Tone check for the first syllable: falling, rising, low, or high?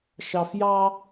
low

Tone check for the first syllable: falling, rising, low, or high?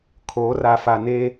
rising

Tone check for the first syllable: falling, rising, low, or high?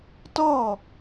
falling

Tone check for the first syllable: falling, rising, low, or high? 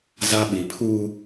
high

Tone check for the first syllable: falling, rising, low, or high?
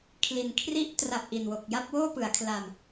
low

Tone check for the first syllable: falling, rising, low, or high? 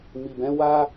low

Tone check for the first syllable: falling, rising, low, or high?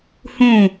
falling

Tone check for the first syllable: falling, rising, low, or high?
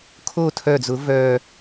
falling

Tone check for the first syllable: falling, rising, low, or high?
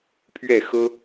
falling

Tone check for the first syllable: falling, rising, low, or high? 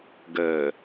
low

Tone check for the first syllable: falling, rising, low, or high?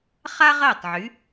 high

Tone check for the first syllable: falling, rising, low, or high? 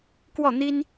falling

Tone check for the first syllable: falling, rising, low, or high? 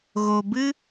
low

